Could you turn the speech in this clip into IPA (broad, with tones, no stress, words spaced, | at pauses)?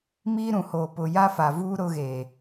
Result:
miː˦ɾũ˨hoː˨pʊ˨ ja˦fa˨vuː˦ ɾʊ˦ɣe˨